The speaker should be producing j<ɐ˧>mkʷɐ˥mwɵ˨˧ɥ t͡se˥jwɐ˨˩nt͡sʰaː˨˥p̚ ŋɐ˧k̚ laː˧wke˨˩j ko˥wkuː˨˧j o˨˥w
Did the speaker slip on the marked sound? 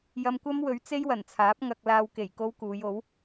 no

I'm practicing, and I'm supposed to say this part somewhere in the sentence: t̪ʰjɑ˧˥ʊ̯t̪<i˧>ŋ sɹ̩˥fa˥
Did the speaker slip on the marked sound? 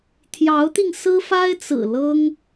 no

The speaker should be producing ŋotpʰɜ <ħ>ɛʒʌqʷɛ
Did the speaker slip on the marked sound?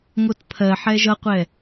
no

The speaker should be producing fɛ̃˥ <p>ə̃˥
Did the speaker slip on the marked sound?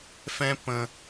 no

